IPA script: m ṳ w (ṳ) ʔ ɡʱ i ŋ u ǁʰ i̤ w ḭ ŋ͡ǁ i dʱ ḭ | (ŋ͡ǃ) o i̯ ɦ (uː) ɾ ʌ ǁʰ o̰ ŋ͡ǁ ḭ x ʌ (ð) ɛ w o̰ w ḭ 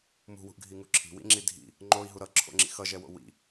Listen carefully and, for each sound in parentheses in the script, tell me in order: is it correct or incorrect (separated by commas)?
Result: correct, correct, incorrect, incorrect